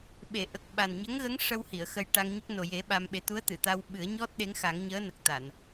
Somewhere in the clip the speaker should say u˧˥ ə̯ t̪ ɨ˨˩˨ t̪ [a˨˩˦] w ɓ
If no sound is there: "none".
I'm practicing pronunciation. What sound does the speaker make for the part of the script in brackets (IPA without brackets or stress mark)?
a˧